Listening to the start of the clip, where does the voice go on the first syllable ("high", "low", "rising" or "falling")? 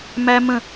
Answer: high